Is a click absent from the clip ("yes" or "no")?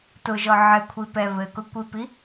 yes